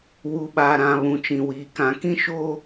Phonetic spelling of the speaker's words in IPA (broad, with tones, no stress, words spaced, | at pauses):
wu˨ɓa˨ ɾã˨ βũ˨t͡ʃĩ˨wiː˨ kã˨kĩ˦ ʃoː˦